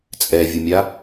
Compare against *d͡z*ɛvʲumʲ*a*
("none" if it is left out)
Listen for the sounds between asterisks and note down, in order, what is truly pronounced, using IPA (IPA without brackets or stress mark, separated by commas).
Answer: t͡sʼ, a